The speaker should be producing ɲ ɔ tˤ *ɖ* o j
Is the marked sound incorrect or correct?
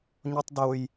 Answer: incorrect